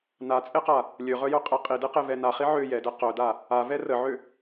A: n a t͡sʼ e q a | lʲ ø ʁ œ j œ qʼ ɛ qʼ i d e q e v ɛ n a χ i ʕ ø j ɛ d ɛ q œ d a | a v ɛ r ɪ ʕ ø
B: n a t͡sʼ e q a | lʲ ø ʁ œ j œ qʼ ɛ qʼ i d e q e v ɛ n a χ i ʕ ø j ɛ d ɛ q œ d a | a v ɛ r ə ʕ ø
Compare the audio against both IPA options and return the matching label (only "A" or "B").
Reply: B